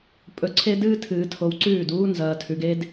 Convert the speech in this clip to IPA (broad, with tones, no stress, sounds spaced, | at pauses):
pʼ ɵ˨ ǀʰ e˦ d ɨː˦ tʰ ɨː˨ tʰ o˨ w ǀ ʉː˦˨ d uː˦ n z ɐː˨ tʰ ʉ˨ ɡ e˦ d